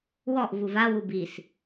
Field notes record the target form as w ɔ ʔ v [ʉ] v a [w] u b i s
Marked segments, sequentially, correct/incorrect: incorrect: u, correct

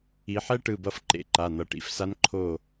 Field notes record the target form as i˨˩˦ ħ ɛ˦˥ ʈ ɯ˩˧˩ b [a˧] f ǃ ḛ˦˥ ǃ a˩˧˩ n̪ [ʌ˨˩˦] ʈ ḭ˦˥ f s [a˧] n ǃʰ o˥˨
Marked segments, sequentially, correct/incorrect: incorrect: ʌ˧, correct, incorrect: a˦˥

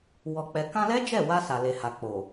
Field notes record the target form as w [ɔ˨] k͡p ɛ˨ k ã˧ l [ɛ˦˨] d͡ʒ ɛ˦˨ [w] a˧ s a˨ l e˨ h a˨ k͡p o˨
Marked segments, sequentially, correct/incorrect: correct, incorrect: ɛ˦, correct

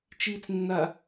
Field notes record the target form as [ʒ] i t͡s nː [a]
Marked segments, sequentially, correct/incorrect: incorrect: t͡ʃ, correct

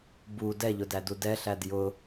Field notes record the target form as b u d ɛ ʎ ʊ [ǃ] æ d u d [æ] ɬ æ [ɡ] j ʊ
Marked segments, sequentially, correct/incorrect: incorrect: d, incorrect: ɛ, incorrect: d

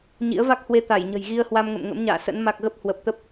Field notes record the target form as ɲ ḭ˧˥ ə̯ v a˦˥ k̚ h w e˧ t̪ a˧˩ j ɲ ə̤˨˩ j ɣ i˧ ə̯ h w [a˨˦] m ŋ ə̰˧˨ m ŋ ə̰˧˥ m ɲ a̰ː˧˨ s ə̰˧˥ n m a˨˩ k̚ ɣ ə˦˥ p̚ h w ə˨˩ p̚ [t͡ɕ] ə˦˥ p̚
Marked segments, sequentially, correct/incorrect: incorrect: a˧, incorrect: t̪

